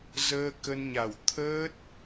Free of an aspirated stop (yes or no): no